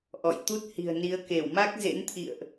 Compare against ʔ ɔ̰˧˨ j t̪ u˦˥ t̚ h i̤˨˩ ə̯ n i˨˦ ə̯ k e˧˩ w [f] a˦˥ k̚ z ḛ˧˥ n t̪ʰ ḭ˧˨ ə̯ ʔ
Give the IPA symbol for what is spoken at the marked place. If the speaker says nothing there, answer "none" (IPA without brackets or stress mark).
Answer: m